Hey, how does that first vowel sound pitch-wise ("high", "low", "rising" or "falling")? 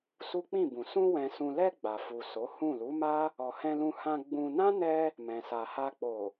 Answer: high